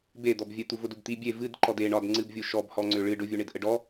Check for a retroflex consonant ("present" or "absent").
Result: present